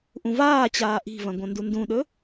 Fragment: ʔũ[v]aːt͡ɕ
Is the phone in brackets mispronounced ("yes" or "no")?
no